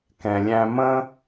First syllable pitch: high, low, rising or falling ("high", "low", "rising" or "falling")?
low